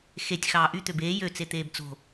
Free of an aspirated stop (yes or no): yes